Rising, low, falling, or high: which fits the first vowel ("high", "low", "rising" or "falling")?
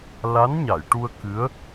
rising